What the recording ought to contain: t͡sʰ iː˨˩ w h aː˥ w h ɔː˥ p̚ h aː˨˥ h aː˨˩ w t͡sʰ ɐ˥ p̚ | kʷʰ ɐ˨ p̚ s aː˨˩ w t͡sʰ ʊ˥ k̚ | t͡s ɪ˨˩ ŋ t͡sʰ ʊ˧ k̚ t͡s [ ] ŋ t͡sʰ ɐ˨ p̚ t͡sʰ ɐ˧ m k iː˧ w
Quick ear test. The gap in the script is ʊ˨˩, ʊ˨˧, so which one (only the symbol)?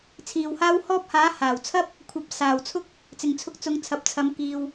ʊ˨˧